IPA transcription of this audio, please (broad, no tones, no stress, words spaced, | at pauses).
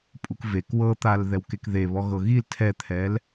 pʼukvek wɤt̪al ðɛwkekðeβɔ ɣɤɣil tʰɛt̪ʰɛl